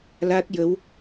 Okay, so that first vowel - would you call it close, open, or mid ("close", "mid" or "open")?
open